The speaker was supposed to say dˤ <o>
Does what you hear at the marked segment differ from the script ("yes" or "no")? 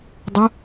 yes